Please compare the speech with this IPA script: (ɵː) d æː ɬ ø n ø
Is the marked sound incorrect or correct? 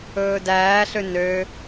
correct